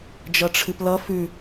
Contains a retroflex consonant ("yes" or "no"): yes